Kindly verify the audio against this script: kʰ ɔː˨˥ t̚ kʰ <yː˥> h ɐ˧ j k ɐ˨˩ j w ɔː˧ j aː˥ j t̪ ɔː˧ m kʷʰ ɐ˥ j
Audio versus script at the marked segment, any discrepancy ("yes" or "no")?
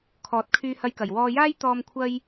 yes